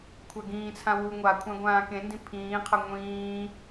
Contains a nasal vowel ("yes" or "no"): yes